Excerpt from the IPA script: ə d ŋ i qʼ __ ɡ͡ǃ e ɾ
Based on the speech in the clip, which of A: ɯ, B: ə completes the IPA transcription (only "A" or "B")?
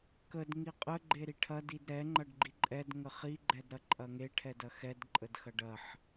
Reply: B